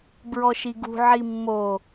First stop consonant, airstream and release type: plain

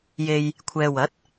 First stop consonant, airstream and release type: aspirated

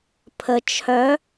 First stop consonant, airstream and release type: aspirated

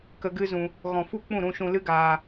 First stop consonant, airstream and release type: plain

